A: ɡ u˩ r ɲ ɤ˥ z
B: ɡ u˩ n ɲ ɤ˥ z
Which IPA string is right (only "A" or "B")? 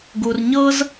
A